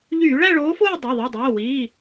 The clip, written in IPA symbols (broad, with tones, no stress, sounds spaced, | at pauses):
ʎ yː˧˩˧ ɭ æ˥˧ ɭ oː˨˦ f oː˥˧ dˤ o˩˧˩ ðˤ i˩˧˩ dˤ oː˩˧˩ w iː˩˧˩